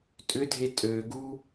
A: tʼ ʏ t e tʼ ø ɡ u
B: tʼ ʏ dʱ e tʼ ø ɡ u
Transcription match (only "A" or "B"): B